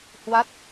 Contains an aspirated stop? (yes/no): no